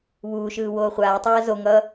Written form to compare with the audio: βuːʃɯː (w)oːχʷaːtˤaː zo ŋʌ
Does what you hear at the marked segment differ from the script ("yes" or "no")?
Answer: no